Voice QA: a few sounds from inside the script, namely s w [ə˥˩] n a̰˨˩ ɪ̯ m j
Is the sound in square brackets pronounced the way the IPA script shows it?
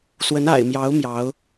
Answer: no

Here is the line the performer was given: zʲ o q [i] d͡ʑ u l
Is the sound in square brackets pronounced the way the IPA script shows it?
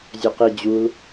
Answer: yes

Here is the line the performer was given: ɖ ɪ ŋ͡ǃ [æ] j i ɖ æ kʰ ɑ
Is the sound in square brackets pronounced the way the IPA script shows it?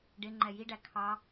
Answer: no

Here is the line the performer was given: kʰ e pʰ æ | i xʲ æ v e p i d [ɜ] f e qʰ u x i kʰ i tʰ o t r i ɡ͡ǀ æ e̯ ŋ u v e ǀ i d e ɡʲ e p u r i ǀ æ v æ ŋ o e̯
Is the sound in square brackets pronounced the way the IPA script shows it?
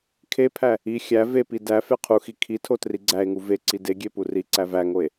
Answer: no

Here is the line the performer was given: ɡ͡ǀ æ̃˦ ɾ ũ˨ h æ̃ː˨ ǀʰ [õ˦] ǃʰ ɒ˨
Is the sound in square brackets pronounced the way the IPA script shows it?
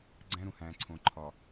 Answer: no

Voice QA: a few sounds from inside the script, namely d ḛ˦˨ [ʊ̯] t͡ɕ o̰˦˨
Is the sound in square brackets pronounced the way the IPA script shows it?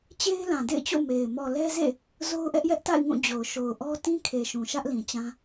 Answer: no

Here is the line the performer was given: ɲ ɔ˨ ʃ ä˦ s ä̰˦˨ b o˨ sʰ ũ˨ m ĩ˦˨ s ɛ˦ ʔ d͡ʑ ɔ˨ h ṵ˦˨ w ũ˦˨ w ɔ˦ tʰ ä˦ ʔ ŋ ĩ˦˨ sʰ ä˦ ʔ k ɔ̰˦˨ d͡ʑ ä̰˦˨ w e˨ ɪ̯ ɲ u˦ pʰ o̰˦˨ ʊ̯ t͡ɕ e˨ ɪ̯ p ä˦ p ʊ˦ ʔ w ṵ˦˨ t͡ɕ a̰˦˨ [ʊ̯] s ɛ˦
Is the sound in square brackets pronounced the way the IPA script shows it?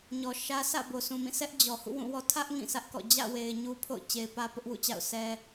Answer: yes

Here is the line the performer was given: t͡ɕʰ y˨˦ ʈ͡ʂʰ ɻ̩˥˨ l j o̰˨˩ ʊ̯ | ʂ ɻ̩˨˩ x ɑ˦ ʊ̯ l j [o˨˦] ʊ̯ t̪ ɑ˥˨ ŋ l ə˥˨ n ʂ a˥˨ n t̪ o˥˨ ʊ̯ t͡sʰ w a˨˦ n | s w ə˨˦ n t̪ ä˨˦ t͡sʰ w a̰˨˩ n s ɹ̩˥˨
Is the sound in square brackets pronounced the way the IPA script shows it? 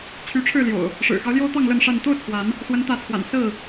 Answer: no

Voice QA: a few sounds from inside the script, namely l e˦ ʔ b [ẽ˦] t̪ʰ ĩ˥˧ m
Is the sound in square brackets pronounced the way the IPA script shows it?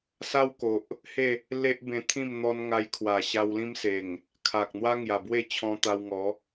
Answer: no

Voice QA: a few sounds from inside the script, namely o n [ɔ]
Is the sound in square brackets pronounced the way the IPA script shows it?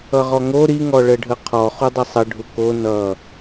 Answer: no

